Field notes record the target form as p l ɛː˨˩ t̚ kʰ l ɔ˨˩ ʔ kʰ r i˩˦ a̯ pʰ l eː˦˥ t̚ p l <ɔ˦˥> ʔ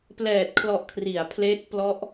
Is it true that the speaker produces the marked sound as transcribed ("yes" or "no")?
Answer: yes